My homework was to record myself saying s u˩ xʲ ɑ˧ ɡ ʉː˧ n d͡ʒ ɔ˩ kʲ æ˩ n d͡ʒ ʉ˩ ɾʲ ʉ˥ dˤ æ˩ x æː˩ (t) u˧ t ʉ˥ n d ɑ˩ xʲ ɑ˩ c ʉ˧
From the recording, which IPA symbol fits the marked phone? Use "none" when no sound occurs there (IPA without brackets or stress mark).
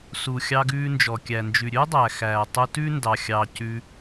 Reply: tˤ